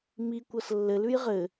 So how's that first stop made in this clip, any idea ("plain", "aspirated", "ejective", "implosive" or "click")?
plain